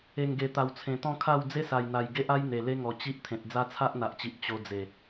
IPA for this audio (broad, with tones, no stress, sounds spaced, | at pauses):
e˨˩ ŋ ɡ e˨˩ t̪ a˨˩ w t͡sʰ ẽ˨˩ t̪ ɔ̃˥˧ kʰ a˥˧ w d͡z e˦ s a˨˩ j n̪ a˨˩ j ɡ e˦ ʔ a˦ j n̪ e˨˩ l e˦ ŋ ɔ˨˩ t͡ɕ i˦ ʔ t̪ʰ ẽ˨ t̚ d͡z a˦ t͡sʰ a˦ ʔ n̪ a˨ ʔ t͡ɕ i˨ ʔ t͡ɕ o˧ d͡z e˨˩